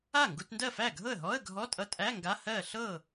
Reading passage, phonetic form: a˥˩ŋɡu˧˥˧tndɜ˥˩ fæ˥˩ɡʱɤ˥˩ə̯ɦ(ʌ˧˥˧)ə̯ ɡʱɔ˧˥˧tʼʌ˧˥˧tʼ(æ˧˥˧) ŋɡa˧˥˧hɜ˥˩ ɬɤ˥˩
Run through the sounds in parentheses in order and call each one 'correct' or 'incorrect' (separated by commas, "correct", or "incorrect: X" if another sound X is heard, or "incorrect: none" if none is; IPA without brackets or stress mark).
incorrect: ɔ˧˥˧, correct